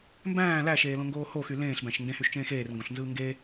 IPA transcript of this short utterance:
mbæ̃ː læʃeːlõŋɡoː hoxy lẽːɬbæ̃ʃ ndẽhyʃt͡ʃẽːx eːrŋɡõɬnzɯː ŋɡe

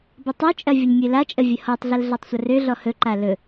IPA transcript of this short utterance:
bətˤøt͡ʃʼɐ vʲəɲmʲɵlat͡ʃʼə vʲəhɔtˤɮəl ɮatˤsʷərøɮɔ hɵǃa lɵ

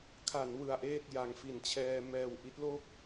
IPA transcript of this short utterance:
kʰa˩˦n wɯ˧a̯ʔeː˥˩t̚ja˧ŋ fi˨˩nt͡ɕʰɛː˧ mɛː˨˩w ʔi˦˥t̚lo˥˩k̚

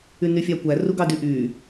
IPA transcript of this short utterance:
ynyfʲɑkʷæ ruɡɑdyʔy

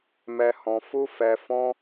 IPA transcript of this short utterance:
mɛ˧hɔ̃˧fu˦ fɛ˧fɔ̃˦

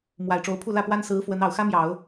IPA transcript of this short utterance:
mwa˨˩ɪ̯ʈ͡ʂo˧˥ʊ̯pʰu˥˧ lä˥˩pwa˥n sɹ̩˧˥ fwə˧˥nɑ˨˩ʊ̯ xä˥mjɑ˨˩˦ʊ̯

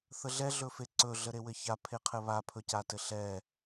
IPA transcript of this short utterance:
θəɮɛ ɮɵfeǀɵ ɮəɾewɘça pʰeqʰɘβa pʰɵcatɘɬɛ

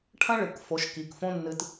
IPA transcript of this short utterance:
ʈʰɐ̃˦ɭɨ˨kfo˨˦ʃ ki˨kfõ˦ nːɨ˨t

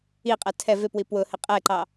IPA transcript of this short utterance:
iqʼɛ tʰɛ vɪpwi pwʊhɪ qʼɛǃɑ

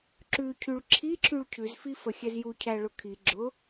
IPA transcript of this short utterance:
ǁʉcʰyɭ ǁʰiǁʰyɭ cʰʉzfifəxʲɛz jucʰæɭʊ kʰi ɡ͡ǁʊ

